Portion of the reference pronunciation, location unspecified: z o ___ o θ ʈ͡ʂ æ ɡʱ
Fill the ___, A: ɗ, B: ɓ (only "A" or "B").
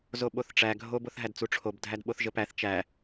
B